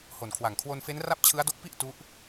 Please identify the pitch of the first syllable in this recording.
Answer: low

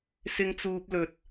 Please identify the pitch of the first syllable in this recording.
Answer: high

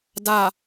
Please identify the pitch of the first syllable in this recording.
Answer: falling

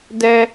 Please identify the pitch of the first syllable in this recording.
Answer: low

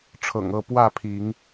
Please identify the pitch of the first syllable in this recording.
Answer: low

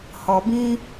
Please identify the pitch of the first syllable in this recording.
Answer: low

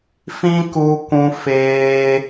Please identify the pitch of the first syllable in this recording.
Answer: high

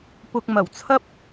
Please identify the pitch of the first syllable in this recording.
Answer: low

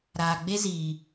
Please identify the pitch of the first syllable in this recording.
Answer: low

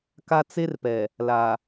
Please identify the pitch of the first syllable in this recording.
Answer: high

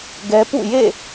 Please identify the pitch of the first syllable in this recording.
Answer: high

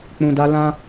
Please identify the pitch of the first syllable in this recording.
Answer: low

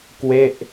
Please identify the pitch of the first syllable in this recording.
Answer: falling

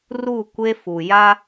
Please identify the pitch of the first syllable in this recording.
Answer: falling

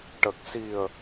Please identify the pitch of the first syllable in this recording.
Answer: low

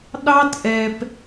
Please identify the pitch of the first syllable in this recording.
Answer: high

